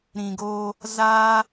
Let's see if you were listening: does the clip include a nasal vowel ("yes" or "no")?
yes